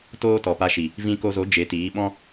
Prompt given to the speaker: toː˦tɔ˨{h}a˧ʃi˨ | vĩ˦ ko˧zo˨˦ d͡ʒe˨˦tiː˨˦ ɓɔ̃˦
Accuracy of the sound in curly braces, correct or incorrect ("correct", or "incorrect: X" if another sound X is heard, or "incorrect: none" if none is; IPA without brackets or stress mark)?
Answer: incorrect: p